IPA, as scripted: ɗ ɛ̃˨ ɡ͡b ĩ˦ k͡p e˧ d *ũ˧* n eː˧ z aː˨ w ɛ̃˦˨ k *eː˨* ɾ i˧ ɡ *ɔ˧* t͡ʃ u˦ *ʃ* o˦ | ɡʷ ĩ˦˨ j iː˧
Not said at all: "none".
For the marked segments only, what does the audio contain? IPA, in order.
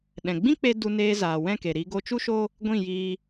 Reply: u˧, e˨, o˧, ʃ

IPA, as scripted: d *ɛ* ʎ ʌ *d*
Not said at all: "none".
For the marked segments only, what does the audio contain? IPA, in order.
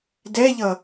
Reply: ɛ, none

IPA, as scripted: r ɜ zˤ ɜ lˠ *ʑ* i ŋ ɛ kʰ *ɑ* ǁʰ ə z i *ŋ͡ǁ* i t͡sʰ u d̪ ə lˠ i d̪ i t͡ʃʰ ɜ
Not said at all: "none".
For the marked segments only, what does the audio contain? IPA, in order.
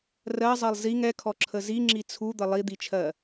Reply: z, ɔ, ŋ͡ǁ

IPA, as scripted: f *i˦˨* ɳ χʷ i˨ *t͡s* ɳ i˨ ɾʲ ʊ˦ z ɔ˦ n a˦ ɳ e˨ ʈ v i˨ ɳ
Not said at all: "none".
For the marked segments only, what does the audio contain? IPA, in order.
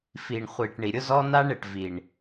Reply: i˨, ʈ

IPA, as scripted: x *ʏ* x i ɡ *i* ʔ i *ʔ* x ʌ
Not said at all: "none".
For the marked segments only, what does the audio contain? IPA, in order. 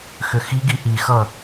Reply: ʏ, i, none

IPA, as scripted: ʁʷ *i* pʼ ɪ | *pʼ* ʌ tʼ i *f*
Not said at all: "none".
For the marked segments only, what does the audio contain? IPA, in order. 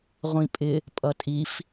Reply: ĩ, pʼ, f

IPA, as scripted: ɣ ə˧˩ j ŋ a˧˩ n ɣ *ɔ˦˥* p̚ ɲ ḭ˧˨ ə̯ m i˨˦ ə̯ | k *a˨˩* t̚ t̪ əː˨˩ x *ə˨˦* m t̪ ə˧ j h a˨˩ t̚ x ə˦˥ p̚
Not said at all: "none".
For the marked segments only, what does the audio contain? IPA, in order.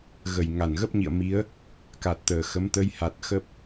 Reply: ə˦˥, a˨˩, ə˨˦

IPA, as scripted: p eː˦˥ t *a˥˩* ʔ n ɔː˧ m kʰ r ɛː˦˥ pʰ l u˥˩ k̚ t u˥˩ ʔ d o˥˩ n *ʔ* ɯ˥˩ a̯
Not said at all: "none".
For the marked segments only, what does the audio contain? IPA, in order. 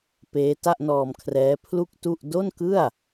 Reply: a˥˩, k

